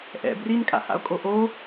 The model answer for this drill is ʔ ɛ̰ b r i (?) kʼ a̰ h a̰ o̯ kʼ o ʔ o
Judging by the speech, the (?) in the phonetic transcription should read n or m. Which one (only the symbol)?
n